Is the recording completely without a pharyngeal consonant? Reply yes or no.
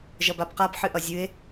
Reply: no